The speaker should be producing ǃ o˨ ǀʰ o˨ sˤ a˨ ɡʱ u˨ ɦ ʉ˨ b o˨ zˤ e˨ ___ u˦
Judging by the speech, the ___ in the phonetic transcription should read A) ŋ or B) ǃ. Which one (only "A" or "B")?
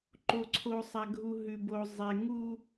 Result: A